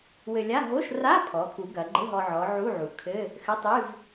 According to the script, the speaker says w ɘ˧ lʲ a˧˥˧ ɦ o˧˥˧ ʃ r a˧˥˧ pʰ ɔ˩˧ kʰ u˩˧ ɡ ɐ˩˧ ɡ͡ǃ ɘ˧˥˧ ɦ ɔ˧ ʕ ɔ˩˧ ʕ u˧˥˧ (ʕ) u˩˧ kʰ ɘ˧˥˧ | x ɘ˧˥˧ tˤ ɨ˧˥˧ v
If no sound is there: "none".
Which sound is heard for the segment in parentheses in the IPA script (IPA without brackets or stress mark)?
ʕ